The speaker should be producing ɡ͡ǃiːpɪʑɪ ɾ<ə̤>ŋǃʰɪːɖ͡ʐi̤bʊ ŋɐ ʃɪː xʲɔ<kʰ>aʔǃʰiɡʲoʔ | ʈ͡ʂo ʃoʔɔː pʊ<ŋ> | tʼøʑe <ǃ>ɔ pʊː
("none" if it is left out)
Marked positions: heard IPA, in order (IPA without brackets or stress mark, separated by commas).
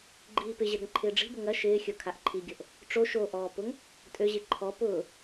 ə̤, kʰ, ŋ, ǃʰ